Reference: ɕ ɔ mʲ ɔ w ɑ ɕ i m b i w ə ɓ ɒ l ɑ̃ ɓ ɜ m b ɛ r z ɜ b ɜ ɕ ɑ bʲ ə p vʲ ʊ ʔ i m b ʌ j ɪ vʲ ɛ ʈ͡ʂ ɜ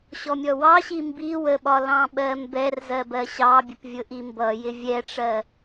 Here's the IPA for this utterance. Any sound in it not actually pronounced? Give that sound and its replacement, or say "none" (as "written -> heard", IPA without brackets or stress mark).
none